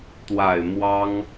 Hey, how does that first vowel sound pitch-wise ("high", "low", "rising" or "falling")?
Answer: low